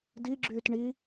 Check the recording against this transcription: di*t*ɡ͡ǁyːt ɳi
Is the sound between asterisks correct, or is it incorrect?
incorrect